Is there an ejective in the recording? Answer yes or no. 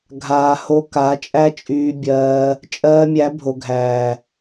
yes